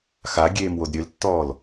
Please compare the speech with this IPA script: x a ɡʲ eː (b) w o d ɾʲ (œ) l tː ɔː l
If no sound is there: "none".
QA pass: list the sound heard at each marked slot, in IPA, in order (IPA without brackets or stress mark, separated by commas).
m, ø